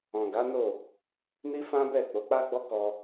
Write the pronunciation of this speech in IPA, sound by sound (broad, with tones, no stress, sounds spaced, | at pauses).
ɔ̃˨ ɡ a˨˦ n o˦˨ | n i˦ f ã˦ b ɛ˦˨ k͡p o˨˦ k͡p a˦ ɡ͡b ɔ˦ k ɔ˧